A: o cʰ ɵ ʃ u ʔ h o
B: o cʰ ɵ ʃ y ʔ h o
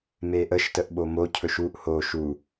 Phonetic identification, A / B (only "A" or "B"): A